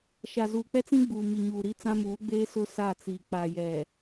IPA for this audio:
ʃ a˨ z uː˨ k͡p ɛ˦ t͡s ĩ˦ ɡ͡b uː˨ m i˨ ɲ uː˨ ɾ i˦ t͡s ã˦ m uː˨˦ ɡ͡b eː˦ s ʊ˦ s a˦˨ t͡s iː˨ k͡p a˨ j ɛ˨

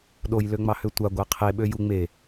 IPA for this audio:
ɗ o j l ø ŋ͡m ɑ h ø tʷ a ɡʷ a qʰ e ɓ ø j u ŋ͡m e

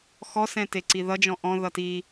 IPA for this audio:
x ɔ s ɛ̃ t e ǀ i ð ʌ d͡ʒ ɔ̃ ʔ ɔ̃ ð ʌ t i

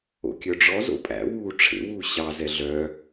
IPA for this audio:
o̰ kʲ œ ɖ͡ʐ ɔ z o̰ pʼ æ̰ w uː ʈ͡ʂʰ ḛ w uː ɕ ɑ z ɛ ɮ œ

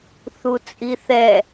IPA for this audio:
θ u t͡sʼ i θ ɛ

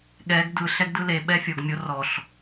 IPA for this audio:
ɠ ɛ ɡ d ɯ ɬ ɛ ɡ d ɯ l e ɓ ɛ fʲ o ɡ mʲ o r ɔ ɬ

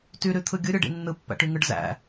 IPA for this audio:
t y ɾ y t̪ʰ ɯ ɡʲ ɯ ɾʲ ɯ ɖ ḭ nː ɯ pː æ̰ ʈ y ŋ ɯ ɖ z æ̰

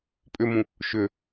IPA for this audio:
pʼ ʏ m ũ | ʃ ʏ

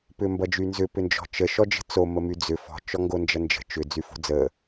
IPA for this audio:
p ʏ m b ʌ d͡ʒ y n z ʏ p ʏ n d͡ʒ ɔ̤ t͡ʃ ə ʃ ɔ d͡ʒ ə̤ t͡s o m ə m y d͡z ʏ f ɔ̤ t͡ʃ ɔ ŋ ɡ o n d͡ʒ ʌ n d͡ʒ ə̤ t͡ʃ ʏ d͡z y f o̤ d͡z ə

